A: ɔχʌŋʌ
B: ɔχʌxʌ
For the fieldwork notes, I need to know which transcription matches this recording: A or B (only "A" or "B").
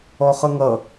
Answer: A